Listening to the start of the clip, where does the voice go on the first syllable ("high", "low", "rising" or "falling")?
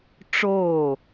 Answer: falling